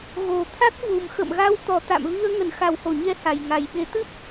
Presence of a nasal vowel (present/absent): absent